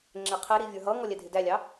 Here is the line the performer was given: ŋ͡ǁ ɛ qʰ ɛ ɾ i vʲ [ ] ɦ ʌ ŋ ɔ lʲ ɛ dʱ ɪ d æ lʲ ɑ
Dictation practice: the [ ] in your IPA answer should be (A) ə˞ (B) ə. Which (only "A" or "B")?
A